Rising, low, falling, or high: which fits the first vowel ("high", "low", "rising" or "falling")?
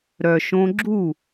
low